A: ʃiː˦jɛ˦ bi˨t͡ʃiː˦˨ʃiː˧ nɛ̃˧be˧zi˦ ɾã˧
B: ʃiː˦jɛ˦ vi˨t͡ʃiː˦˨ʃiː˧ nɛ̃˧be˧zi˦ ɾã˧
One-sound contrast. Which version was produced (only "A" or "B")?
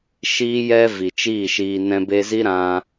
B